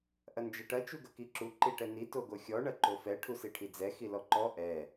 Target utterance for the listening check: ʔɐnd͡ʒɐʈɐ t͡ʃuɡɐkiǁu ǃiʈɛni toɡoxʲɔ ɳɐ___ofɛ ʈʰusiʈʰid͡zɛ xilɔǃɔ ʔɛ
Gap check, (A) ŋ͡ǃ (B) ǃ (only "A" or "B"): B